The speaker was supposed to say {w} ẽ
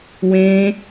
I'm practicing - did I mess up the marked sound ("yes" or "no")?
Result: no